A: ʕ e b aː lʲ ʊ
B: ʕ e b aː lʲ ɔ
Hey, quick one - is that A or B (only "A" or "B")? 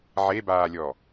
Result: B